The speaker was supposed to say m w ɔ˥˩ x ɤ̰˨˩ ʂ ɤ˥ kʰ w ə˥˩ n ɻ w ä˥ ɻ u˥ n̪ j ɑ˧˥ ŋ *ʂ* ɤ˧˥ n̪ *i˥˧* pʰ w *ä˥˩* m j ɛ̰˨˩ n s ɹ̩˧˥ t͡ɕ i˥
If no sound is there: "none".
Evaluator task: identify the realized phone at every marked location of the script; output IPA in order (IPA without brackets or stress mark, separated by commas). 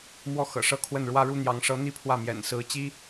ʂ, i˥, ä˥˩